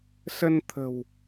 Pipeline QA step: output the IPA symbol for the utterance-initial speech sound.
s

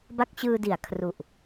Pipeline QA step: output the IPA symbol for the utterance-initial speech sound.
b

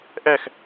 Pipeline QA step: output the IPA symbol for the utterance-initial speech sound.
ʔ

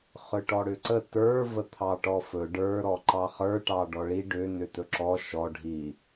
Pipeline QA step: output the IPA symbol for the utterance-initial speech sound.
χ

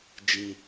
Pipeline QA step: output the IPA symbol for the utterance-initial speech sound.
d͡ʒ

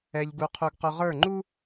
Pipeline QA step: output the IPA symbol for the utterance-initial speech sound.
ɛ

